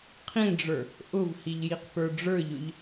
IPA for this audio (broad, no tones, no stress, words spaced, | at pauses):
qʰĩɖ͡ʐə˞ | ʔʊvhiʎjiq pə˞ɖ͡ʐə˞ʎʊʎ